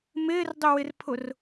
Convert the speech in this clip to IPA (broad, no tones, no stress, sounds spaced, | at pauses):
m ɪː r dˤ ʏ w ɪ r pʰ ʊ r